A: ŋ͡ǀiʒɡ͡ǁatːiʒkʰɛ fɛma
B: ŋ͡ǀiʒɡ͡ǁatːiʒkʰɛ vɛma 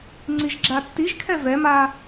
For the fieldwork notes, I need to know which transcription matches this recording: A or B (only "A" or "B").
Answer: B